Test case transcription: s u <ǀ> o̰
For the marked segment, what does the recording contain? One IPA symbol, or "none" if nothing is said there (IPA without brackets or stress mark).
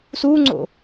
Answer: ŋ͡ǀ